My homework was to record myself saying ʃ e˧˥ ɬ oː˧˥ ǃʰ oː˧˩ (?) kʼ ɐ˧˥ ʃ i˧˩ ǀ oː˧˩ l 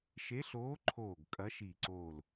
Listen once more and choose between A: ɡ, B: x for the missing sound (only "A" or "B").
A